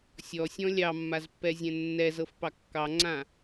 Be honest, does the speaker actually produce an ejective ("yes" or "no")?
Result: no